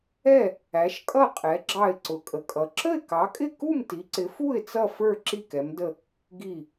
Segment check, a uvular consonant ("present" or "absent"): present